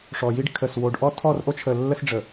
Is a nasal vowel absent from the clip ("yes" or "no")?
yes